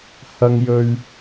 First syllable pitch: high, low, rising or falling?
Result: low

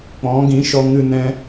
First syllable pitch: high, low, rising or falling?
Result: rising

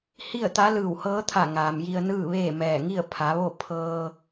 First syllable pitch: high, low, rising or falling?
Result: falling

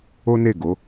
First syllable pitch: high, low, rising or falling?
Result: high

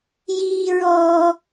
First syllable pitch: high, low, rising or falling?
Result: low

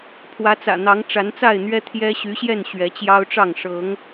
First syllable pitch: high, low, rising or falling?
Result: rising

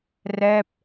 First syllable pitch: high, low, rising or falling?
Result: falling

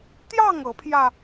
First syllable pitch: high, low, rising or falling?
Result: falling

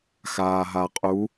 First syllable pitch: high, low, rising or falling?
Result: low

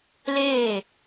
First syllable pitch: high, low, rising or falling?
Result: falling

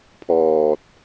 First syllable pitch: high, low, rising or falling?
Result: low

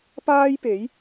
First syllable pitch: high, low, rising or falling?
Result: high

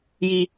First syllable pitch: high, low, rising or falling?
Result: low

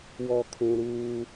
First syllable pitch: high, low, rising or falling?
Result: low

